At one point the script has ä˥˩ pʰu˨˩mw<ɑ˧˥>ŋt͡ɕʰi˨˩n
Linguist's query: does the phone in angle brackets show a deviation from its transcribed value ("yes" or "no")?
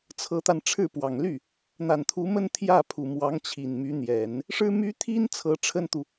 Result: no